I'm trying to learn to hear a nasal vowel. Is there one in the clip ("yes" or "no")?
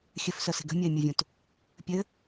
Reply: yes